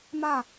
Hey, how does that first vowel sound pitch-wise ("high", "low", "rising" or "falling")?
falling